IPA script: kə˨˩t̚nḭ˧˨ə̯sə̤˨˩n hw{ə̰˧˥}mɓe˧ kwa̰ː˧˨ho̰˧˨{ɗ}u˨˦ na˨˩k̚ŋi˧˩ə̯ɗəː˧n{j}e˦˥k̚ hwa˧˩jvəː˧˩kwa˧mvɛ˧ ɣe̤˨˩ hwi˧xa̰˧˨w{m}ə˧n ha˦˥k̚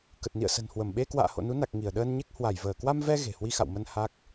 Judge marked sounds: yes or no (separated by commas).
no, no, no, yes